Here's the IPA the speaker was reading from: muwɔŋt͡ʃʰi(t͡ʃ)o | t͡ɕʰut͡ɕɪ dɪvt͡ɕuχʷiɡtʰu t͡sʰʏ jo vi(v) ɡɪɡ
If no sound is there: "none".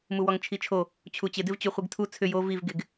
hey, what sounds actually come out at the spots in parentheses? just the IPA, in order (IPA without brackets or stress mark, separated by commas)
t͡ʃʰ, v